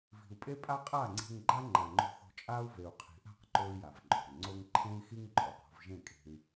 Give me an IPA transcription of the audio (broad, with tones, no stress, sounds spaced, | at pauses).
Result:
v i̤˨ u̯ pʼ e˦ pʼ a˦ qʼ a˦˨ ŋ͡ǀ e̤˧ ŋ ɡ͡ǃ a˦ ŋ͡ǃ ã˨ ŋ͡ǃ o̤˧ x o̤˧ t͡ʃʼ a˦ u̯ v e˨ u̯ qʰ i̤˨ ʔ a̤˦˨ q ǃ o˧ y̯ j a˨ v ǃʼ o̤˨ l ŋ͡ǀ o˦ ŋ ǃʰ ẽ˦ i̯ x i˦ ŋ ǃʼ o˨ q o̤˧ v ʒ ẽ˦˨ kʼ e̤˧ y̯